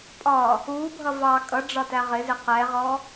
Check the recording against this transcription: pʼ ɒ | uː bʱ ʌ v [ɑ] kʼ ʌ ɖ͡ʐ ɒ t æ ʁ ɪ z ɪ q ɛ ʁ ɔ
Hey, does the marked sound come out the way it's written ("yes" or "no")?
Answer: yes